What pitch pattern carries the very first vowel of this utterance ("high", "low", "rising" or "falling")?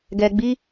low